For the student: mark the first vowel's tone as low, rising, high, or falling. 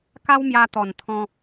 high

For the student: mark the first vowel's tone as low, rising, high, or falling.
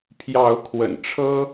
rising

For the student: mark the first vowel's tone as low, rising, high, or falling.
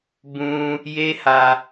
high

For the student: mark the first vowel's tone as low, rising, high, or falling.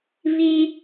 high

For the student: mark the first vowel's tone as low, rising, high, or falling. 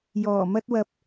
low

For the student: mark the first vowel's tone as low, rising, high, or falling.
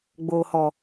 low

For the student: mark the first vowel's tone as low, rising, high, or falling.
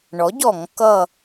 rising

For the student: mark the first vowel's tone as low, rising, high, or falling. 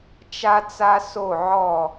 high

